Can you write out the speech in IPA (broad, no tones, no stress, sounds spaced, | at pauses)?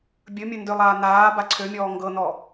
bʲ ɵ mʲ ɵ n d ø lˠ aː n aː b a ǀʰ ø mʲ ɔː ŋ ɡ ɤ n ɔ